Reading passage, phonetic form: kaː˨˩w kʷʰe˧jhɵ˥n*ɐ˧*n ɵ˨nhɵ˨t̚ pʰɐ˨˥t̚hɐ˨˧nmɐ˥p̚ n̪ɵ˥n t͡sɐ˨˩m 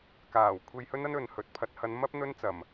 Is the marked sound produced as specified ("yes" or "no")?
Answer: no